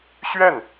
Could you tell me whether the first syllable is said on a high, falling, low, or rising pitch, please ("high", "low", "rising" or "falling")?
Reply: falling